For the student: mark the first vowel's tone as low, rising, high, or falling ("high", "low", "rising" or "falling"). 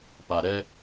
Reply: low